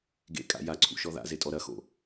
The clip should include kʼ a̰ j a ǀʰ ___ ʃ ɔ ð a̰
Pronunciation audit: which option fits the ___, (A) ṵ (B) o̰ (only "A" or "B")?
A